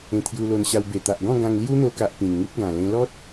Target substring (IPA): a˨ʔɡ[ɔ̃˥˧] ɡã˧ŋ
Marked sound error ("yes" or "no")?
no